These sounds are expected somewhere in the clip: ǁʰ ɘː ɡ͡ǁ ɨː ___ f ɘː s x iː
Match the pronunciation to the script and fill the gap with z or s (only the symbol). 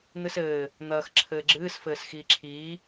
s